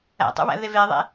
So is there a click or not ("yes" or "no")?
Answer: no